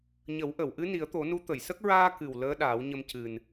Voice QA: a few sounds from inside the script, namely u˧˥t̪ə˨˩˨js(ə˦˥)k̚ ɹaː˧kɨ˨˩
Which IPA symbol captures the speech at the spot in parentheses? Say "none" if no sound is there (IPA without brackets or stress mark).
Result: ə˦˥